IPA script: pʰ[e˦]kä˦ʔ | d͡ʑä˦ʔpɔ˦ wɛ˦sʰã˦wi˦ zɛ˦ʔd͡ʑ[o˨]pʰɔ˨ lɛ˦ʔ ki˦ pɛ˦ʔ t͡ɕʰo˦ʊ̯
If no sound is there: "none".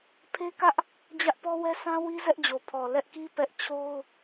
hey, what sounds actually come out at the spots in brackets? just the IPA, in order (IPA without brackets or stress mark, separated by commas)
e˦, o˨